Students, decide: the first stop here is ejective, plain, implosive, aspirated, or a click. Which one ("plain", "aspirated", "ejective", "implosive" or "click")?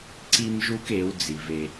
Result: click